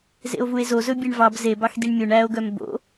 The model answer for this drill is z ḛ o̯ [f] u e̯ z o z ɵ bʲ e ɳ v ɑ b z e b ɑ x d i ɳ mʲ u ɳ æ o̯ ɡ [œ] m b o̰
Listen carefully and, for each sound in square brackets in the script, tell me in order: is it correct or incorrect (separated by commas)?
incorrect, correct